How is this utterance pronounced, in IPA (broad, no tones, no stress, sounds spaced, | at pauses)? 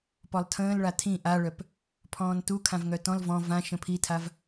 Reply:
p ɔ lˠ tʰ ə̃ː l ɭ a tʰ ĩ ʔ a ɭ œ p | pʰ ɔ̃ː n t u kʰ ã v ŋ œ t ɔ̃ l v ɔ̃ v ã ʃ ə̃ pʰ i tʰ a v